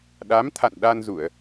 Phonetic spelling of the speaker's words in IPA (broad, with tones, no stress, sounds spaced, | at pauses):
ɗ a˨˦ m t̪ʰ a̰˧˨ n ɗ a˧ n z u˧˩˨ ə̯